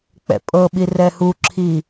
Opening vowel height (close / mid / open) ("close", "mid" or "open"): mid